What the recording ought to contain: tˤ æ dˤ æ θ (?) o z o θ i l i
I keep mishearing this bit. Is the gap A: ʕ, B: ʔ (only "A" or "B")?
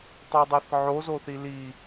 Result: A